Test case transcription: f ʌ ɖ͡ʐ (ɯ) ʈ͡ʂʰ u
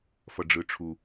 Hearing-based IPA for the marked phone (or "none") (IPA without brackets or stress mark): ɯ